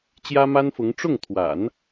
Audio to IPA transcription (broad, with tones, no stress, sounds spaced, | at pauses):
t͡ɕ j ä˥ m a˥ n f ʊ˧˥ ŋ ʈ͡ʂ ʊ˥˩ ŋ t̪ʰ w a̰˨˩˦ n